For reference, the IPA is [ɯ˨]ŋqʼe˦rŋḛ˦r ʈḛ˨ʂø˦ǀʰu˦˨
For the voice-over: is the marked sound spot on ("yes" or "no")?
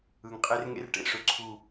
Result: yes